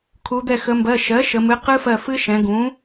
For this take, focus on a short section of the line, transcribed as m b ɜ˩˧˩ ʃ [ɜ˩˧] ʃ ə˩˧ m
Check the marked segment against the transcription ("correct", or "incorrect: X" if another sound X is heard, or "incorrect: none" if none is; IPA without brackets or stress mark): incorrect: ɜ˩˥